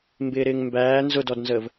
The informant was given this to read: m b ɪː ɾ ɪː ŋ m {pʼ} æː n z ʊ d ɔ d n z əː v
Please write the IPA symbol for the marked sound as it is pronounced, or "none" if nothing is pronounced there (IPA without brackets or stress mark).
b